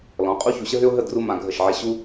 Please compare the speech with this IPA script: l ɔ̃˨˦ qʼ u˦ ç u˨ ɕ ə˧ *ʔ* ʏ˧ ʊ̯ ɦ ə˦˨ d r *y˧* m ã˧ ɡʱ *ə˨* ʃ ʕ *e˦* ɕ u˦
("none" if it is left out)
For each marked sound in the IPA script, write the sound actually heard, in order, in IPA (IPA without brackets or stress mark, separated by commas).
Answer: ɦ, u˧, ə˦˨, e˦